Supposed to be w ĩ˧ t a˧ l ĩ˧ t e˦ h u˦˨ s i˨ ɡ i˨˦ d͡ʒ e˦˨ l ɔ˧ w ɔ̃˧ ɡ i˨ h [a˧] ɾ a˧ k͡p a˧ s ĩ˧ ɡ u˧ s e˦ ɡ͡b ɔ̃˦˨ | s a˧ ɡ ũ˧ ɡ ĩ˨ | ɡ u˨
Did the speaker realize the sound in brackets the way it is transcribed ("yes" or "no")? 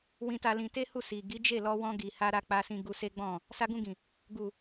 yes